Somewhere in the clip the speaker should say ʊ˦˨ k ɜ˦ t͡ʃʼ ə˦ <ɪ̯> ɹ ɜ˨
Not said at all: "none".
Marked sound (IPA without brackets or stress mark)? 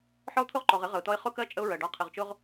ʊ̯